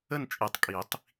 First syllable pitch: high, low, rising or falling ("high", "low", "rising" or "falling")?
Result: falling